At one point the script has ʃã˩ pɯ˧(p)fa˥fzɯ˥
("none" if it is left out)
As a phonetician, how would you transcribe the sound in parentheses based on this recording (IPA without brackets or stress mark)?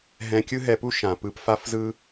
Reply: p